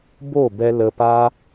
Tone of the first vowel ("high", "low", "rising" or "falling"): falling